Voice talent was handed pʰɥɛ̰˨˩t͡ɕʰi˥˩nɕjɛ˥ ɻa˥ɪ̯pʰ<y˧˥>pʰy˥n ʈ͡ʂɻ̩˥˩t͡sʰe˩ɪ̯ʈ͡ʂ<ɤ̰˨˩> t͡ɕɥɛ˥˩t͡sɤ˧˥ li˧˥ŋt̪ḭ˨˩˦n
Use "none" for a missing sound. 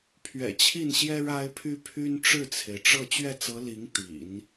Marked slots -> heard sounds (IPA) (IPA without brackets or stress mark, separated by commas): y˥, ɤ˥˧